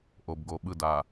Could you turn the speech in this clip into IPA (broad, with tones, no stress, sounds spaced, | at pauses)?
ʔ o˨ b ɡ o˨ ɓ ɯ˦˨ d a˨